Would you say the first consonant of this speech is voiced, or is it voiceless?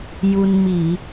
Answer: voiced